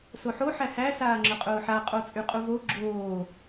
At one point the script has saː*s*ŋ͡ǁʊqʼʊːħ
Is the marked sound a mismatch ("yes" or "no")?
yes